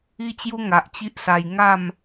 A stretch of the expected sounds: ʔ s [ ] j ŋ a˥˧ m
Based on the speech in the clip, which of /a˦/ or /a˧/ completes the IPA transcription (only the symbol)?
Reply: a˧